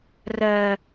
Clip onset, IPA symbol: r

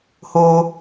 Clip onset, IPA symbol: h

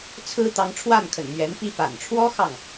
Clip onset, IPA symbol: t͡sʰ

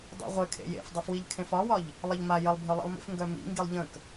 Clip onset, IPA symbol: dˤ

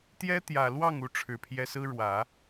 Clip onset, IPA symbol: t̪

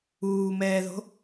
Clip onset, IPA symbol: uː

